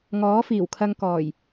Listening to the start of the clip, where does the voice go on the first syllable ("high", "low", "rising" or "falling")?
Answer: rising